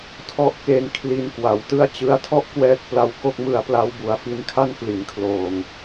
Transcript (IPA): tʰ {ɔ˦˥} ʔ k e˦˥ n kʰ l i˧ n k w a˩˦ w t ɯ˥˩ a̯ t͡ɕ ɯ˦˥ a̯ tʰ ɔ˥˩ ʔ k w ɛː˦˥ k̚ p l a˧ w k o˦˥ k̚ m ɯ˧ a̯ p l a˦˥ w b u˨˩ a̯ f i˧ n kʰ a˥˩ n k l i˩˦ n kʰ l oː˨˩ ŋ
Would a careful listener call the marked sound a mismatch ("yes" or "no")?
yes